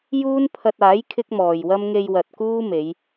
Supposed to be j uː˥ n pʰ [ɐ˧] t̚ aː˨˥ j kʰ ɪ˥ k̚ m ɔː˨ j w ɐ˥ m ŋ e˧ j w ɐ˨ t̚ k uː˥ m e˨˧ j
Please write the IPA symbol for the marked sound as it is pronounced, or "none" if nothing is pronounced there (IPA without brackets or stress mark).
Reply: ɐ˧